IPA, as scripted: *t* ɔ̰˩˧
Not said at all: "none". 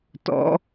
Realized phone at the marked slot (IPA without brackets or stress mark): t